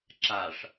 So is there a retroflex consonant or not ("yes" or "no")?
yes